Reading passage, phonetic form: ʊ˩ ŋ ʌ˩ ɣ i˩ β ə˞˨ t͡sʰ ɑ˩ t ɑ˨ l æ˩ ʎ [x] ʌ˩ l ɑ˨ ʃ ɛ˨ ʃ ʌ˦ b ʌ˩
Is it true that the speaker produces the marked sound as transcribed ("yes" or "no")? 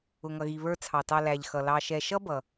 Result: yes